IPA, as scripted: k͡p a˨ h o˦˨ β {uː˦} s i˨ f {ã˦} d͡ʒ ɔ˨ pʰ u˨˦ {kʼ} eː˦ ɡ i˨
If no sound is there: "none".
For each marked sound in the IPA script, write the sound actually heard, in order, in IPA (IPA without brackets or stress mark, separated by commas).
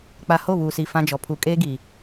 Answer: uː˨, ã˦, kʼ